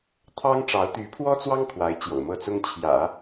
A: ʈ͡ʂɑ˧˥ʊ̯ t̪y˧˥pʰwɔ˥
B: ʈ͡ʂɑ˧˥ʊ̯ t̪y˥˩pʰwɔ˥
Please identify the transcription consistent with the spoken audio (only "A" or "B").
A